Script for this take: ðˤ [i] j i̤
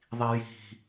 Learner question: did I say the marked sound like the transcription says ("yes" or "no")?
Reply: yes